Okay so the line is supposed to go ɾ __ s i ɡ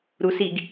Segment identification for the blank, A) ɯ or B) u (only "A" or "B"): B